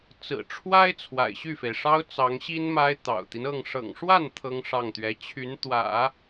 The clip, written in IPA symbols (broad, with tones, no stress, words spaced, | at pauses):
t͡sɹ̩˨˩ʈ͡ʂʰwa˥ɪ̯ t͡sʰwa̰˨˩ɪ̯ɕy˥˩fe˩ɪ̯ʂɑ˥ʊ̯ t͡sɑ˧˥ŋɕi˥nma˥ɪ̯ t̪ɑ̰˨˩ʊ̯t̪i˦n ɤ˥˩ŋ ʂɤ̰˨˩ŋʂwa˥˩n t̪ʰɤ˥ŋʂɑ˥˩ŋt̪ɥɛ˧˥ t͡ɕʰy˧˥nt̪wä̰˨˩˦